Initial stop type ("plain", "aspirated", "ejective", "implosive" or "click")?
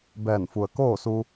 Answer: plain